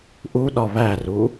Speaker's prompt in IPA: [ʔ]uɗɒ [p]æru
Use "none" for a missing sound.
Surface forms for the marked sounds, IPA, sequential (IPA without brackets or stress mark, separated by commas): ʔ, β